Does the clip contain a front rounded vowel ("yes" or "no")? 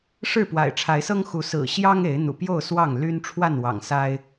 yes